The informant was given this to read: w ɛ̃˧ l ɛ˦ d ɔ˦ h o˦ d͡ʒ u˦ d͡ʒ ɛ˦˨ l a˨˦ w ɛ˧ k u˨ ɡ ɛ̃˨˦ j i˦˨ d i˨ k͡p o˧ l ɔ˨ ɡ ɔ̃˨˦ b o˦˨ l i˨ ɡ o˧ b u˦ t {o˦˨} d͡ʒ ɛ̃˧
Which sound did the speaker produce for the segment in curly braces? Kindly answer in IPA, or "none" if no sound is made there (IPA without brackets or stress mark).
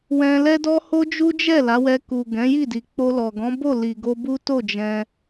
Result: o˦˨